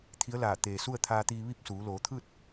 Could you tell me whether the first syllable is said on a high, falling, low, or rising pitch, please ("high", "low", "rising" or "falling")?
rising